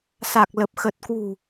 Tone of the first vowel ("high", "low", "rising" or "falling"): low